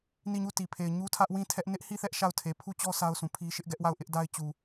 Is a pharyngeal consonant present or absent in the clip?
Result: absent